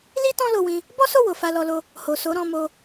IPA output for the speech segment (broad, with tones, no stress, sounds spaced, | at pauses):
l i˦ t ɔ̃˦ l o˧ w ĩ˧ | b ɔ˦ s o˦˨ w o˨ f a˧ l ɔ˧ l o˧ | h o˨ s o˨˦ ɾ ɔ̃˧ m o˧